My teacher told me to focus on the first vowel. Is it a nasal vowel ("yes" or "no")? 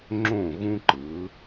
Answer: yes